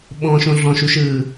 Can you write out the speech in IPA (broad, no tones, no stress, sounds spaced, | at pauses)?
ɓ ɔ̃ ʃ õ ɮ ɔ̃ ʃ u ʃ ɯː